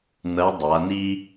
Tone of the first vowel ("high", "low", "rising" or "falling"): rising